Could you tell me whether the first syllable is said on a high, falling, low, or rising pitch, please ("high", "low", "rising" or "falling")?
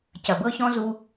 low